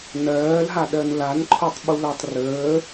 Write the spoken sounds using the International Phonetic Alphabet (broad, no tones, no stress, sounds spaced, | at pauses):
n ɜː l ɦ a ɗ ɜ n l a n ǃʰ o tˤ ɓ u l ɜ tˤ r əː